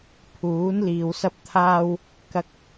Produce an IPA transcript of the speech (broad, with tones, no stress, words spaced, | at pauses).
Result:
pʰuː˨˥nliː˨w sɐ˧p̚t̪ʰaː˧w | kɐ˧k̚